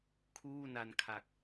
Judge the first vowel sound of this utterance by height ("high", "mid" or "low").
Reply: high